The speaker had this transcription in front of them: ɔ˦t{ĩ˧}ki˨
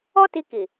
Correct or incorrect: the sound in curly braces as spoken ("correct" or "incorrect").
incorrect